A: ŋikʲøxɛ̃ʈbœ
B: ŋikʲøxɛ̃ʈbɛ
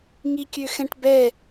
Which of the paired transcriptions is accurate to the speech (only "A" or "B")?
B